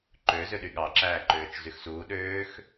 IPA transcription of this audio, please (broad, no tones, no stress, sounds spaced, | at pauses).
ǃ ø z ø ɗ y ɠ ɑ ǁ æː ǃ øː t͡ʃ z y x s uː ɗ øː x